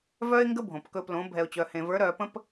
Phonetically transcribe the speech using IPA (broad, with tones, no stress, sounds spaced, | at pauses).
v œ˧ ɪ̯ ŋ ɡ ə˧ bʱ õ˨ p k ɵ˧ p l õ˨˦ bʱ ɛ˨ ʊ̯ t͡ɕ œ˨ h ẽ˨ v ə˞˨˦ ɾ œ˨ p ə̃˧ p